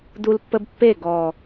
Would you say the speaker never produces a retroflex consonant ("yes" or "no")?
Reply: yes